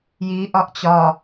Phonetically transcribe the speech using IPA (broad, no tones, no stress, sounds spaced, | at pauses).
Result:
j i ʔ ɒ ʔ t͡ɕ ɒ